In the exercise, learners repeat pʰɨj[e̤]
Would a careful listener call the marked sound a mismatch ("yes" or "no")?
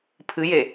yes